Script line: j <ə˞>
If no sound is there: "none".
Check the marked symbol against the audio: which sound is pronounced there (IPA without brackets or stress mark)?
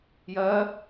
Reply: ɜ